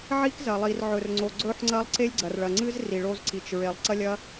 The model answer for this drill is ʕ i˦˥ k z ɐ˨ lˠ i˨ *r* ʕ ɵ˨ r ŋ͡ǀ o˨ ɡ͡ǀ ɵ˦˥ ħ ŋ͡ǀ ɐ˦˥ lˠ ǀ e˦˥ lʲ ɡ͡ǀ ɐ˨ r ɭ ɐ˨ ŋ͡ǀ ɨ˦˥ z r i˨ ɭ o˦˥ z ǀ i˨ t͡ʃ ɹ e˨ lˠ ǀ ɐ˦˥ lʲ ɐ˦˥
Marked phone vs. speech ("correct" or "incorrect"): correct